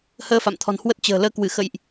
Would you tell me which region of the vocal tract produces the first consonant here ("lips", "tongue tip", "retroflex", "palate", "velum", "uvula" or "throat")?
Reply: throat